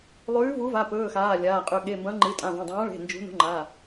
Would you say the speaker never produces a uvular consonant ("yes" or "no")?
no